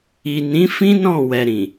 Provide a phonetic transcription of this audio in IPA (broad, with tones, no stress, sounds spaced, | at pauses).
i˨ n ĩ˨˦ f ĩ˦ n ɔ̃˦˨ w ɛ˨ ɾ ĩ˨